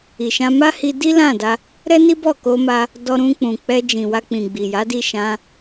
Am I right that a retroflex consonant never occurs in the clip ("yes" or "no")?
yes